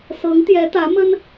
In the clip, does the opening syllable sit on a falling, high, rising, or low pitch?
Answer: rising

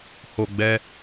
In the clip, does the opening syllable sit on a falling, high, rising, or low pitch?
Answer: low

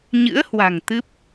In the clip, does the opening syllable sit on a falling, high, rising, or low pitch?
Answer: rising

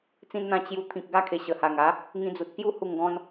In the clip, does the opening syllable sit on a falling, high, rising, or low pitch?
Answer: high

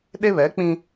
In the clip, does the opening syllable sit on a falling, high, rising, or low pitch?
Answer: high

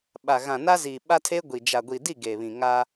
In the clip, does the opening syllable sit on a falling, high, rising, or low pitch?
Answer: low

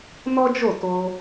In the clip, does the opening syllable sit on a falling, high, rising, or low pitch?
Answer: high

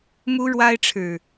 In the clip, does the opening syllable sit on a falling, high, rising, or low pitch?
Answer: high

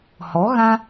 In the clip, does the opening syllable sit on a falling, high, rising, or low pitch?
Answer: rising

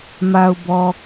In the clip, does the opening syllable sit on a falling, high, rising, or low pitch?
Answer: low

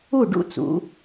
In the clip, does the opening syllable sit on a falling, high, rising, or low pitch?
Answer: falling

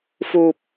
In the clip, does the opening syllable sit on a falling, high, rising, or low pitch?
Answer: low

